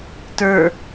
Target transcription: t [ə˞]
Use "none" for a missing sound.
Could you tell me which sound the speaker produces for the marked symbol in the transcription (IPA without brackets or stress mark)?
ə˞